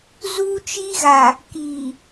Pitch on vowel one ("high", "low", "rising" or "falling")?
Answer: high